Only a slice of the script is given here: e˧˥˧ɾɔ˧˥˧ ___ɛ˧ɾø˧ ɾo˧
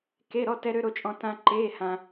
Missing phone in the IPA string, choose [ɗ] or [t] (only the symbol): t